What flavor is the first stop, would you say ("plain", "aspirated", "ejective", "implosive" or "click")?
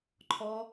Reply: click